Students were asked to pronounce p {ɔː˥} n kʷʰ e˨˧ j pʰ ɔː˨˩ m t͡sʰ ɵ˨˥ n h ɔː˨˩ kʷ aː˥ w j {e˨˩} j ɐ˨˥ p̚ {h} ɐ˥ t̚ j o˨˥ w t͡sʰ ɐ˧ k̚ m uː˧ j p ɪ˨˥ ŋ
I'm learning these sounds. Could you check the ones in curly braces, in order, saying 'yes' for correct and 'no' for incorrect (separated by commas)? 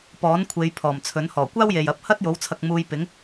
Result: no, no, yes